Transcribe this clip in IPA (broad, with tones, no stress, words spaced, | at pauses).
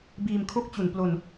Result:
biː˧mkʰo˥˩k̚t͡ɕu˨˩n plo˧n